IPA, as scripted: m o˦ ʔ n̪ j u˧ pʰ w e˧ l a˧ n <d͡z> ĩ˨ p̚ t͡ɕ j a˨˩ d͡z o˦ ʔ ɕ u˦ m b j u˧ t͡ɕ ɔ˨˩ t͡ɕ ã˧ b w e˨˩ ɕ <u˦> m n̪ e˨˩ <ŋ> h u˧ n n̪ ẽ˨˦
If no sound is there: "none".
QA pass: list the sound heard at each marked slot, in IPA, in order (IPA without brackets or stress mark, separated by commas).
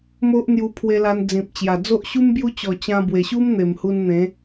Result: d͡z, u˦, m